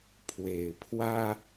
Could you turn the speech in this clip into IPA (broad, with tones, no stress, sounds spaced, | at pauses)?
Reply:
pʰ w e˨˩ ɪ̯ pʰ w ä˥